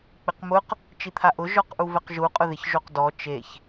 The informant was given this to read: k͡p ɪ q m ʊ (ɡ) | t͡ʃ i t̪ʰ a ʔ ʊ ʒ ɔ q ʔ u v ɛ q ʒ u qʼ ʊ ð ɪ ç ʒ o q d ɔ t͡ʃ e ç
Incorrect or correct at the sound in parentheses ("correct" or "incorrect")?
incorrect